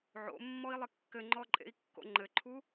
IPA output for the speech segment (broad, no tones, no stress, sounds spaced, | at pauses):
ʕ o̰ mː ɔ i̯ lˠ ɪ kː ɘ ŋ͡ǃ ɔ ǃʼ ḛ i̯ kː o̰ ŋ͡ǃ ɘ ǃʰ u